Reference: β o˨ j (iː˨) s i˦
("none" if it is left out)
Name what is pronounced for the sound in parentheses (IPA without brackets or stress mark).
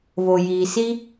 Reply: iː˨